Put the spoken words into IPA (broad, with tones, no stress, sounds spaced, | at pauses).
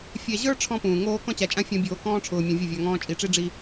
fʲ ɛ˨ ʑ ə˞˦ ʈ͡ʂʰ ɔ̃˦ p ũː˨ ŋ oː˦ k ɔ̃˦ t͡ɕ a˨ t͡ʃʼ ã˦ fʲ ɔ̃˦ bʲ oː˦ k ɔ̃ː˦ ʈ͡ʂʰ ʊː˨ mʲ õ˨ vʲ ʊ˦˨ vʲ a˨ ŋ ɔ̃ː˦ t͡ʃʼ i˨ ʈ͡ʂ i˦ ɖ͡ʐ i˦